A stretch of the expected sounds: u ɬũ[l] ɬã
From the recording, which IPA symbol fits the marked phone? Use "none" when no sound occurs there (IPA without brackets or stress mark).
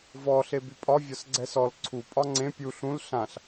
l